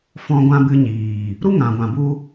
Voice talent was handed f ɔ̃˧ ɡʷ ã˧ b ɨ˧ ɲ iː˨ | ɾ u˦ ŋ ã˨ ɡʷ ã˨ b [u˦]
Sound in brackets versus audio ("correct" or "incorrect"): correct